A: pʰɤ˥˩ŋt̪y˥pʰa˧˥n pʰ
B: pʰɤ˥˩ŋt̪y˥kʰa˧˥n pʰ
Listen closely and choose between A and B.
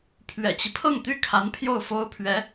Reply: B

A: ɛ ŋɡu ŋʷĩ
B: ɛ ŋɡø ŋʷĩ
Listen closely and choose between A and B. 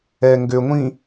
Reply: B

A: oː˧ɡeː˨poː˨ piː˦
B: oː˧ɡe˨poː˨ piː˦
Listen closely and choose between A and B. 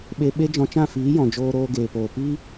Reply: A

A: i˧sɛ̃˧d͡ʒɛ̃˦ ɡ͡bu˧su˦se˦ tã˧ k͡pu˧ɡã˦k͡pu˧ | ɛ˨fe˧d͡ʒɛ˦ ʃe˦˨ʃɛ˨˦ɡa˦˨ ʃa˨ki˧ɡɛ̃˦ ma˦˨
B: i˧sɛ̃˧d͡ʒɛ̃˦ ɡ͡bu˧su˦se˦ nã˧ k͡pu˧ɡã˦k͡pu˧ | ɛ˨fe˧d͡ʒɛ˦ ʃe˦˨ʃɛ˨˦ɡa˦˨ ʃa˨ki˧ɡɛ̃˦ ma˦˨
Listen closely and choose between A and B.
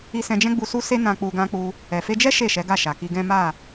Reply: B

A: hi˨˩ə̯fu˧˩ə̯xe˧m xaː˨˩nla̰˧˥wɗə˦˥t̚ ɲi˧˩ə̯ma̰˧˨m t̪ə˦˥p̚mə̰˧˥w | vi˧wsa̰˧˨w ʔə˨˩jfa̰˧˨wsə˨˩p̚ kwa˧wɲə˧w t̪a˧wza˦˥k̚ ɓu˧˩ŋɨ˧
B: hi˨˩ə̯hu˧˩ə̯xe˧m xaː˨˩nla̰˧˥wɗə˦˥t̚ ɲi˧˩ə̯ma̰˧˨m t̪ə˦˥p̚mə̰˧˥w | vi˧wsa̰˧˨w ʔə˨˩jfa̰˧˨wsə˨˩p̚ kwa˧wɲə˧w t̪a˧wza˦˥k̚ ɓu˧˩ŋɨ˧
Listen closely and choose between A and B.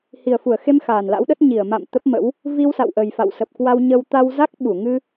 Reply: A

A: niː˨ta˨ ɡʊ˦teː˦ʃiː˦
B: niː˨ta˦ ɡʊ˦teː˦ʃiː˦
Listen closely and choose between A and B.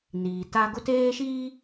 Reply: B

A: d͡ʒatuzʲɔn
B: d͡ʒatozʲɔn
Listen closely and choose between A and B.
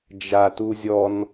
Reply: A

